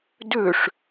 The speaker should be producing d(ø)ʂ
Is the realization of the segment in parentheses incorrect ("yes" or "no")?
no